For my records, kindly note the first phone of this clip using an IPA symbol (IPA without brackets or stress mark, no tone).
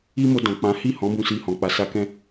i